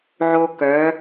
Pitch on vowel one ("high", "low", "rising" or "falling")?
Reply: high